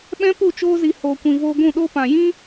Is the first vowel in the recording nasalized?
yes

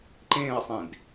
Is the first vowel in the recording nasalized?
yes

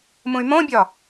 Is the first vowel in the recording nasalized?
yes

